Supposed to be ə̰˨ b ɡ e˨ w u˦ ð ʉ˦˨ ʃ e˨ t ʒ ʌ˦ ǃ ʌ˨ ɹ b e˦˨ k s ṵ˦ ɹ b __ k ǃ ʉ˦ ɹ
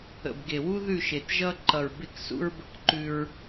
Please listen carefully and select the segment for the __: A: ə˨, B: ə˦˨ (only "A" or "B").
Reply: B